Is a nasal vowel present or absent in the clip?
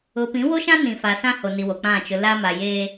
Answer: present